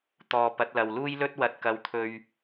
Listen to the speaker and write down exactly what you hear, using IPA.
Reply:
t̪ ɔː˧ p ɐ˨˥ t̚ l ɐ˨ w l uː˥ j l ɵ˥ t̚ w ɐ˨ t̚ k ɐ˨ w t̪ʰ ɵ˨ ɥ

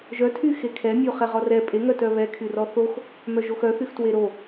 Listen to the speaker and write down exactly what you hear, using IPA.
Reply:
ʒ œ tʰ y x e kʰ ɛ mʲ o χ ɛ ʁ ɔ r ɛ pʼ e ŋ œ t œ β ɛ kʰ y r ɔ θ o x | m œ ʒ o x œ θ y x t w e ɾ o

